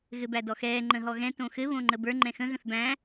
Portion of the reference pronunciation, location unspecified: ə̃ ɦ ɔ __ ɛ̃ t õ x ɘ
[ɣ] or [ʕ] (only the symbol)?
ɣ